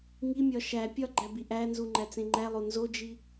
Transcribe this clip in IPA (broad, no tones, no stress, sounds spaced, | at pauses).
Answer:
ŋ i mʲ ɒ ʃ æ pʲ ɒ ɡ͡ǃ æ b i ʔ æ n z u ŋ͡ǃ æ t͡s ẽ ŋ͡ǃ æ lˠ o n z o d͡ʒ i